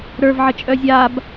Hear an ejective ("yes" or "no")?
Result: yes